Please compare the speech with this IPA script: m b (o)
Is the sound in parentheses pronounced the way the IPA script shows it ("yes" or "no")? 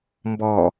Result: no